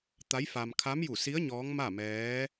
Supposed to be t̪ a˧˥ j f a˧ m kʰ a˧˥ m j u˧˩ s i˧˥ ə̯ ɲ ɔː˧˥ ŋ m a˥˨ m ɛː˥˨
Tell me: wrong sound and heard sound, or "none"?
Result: ɛː˥˨ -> ɛː˧˥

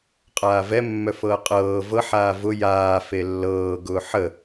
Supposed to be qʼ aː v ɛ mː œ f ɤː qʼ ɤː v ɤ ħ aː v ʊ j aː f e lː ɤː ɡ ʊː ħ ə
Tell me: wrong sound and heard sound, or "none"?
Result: none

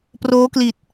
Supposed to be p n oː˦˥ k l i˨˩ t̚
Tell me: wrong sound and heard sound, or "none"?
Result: n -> r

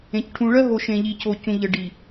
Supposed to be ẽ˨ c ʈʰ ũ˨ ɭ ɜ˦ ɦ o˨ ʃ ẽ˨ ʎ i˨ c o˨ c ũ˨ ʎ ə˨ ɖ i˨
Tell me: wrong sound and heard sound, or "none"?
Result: none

